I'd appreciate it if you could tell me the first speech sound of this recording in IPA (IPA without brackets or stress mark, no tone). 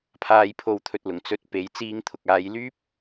pʰ